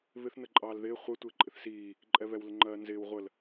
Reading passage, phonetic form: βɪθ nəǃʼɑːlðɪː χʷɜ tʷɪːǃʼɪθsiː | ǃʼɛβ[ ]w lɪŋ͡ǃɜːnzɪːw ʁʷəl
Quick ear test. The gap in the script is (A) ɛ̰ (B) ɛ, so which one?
B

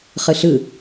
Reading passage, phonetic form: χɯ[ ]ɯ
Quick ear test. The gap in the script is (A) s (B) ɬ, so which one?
B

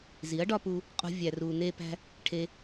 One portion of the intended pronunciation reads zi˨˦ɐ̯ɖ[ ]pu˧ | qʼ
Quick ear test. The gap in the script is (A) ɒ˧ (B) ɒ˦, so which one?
B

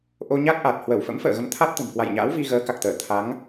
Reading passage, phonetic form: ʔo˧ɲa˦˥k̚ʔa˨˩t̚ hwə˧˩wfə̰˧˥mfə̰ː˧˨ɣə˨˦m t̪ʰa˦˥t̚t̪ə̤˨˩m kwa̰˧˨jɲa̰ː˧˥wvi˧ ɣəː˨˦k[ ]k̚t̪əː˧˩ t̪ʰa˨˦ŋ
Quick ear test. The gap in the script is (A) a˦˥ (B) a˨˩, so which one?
B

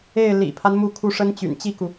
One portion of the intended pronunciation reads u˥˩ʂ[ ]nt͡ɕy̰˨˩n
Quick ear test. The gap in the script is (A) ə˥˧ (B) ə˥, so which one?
B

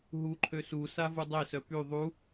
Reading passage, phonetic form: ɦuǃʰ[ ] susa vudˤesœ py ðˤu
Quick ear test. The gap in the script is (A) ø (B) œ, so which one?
A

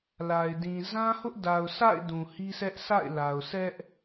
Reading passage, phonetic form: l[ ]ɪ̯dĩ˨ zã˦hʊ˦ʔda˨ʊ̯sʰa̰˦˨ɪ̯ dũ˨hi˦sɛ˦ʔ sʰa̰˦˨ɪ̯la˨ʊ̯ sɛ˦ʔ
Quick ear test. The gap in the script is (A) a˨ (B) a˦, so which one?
A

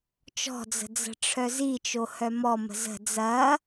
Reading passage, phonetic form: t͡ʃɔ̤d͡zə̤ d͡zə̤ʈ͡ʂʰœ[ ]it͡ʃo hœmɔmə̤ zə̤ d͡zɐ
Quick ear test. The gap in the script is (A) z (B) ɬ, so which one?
A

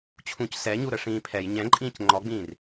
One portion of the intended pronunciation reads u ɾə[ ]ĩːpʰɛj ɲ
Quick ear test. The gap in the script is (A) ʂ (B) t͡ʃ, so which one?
A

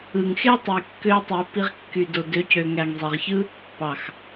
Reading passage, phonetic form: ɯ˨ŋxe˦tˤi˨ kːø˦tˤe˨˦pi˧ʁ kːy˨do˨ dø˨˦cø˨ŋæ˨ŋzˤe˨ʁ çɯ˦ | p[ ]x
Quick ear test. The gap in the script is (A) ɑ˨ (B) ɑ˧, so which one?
A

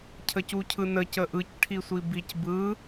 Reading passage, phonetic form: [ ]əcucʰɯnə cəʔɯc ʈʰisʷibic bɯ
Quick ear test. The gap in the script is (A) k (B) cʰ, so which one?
B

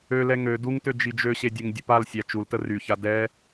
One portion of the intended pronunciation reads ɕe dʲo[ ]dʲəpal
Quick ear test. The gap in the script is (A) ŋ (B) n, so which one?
A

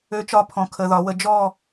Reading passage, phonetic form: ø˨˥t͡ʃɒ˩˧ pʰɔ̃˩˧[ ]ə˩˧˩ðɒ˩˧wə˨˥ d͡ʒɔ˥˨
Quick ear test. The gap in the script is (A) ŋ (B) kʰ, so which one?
B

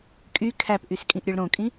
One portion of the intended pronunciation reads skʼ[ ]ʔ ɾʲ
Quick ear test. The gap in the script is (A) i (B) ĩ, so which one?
B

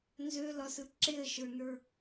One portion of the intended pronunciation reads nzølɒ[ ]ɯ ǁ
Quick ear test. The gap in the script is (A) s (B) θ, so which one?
A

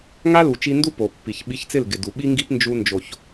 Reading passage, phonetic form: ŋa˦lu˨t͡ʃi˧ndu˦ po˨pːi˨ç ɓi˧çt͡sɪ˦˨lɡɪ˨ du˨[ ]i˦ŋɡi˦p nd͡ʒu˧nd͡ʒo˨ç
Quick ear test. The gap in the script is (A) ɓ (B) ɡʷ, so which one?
A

